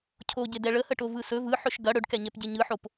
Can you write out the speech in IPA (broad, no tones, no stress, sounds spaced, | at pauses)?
cʰ o ɟ e d ɛ ɭ ə h ə ʈ o v ɯ s ɵ v ɯ ħ ɵ ʃ ɡ ɐ ɽ ɵ ɖ k ɛ ɲ ɛ p ɟ e ɲ ɯ ħ o p